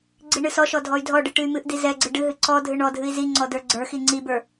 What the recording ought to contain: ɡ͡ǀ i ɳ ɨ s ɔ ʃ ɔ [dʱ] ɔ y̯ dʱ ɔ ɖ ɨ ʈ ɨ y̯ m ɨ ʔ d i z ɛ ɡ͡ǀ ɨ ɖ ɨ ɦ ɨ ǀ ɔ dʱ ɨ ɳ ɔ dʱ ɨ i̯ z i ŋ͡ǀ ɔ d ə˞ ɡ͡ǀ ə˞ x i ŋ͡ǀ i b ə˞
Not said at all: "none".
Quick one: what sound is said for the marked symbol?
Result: dʱ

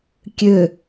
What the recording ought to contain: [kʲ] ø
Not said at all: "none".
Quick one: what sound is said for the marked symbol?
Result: kʲ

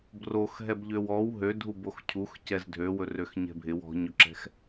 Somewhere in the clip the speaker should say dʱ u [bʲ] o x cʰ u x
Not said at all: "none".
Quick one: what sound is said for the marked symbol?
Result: b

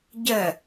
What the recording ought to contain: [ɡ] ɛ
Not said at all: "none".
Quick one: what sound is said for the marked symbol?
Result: ɟ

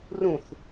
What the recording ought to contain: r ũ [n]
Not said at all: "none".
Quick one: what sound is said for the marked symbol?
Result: θ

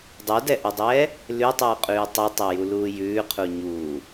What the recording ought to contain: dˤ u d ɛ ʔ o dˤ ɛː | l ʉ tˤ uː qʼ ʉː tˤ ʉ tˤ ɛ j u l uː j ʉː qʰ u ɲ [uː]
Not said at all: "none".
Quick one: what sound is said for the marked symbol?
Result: uː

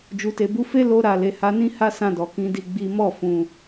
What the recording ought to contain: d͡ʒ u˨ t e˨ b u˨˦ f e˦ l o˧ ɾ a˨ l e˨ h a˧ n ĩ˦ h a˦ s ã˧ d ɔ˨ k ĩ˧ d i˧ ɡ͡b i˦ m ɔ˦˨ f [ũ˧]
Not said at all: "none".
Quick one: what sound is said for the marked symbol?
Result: ũ˧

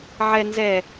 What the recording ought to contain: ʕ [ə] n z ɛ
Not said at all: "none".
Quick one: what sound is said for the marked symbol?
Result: ɛ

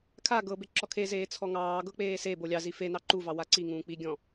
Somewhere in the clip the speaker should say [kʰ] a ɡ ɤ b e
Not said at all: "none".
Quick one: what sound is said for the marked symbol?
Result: kʰ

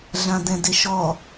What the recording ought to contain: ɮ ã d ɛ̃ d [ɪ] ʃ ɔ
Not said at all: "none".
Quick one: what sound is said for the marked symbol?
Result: ɪ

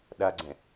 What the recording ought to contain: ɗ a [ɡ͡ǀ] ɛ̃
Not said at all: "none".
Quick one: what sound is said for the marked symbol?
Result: ɡ͡ǀ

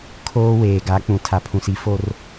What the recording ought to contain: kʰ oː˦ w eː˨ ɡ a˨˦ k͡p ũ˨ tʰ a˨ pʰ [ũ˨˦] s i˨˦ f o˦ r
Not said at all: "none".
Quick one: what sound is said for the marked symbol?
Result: ũ˨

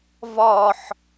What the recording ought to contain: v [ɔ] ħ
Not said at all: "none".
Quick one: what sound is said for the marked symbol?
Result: ɔ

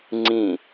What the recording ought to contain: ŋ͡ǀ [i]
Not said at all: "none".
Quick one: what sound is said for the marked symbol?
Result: ĩ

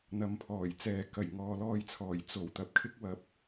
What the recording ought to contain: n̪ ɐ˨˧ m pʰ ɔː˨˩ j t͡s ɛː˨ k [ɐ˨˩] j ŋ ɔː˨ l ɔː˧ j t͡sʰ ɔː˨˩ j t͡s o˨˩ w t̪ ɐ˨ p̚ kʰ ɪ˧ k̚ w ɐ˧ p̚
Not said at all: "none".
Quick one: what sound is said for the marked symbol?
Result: ɐ˨˩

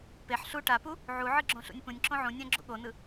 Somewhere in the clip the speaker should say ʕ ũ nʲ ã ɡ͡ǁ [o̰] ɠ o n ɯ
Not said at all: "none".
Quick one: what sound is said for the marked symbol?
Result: ṵ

